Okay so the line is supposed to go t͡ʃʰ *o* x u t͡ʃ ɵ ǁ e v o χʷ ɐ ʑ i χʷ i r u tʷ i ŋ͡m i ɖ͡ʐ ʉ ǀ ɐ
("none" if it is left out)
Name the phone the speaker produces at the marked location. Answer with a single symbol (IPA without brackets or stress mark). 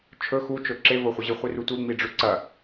ɵ